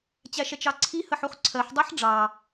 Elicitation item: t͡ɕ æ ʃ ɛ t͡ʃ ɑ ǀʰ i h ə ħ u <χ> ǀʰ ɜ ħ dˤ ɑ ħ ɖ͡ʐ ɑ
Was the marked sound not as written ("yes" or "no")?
no